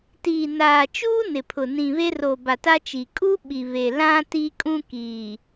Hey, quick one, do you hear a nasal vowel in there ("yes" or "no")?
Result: yes